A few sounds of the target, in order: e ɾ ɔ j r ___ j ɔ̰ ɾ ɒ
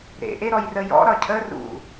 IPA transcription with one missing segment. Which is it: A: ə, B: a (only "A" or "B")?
A